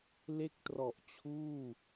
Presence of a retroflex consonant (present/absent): absent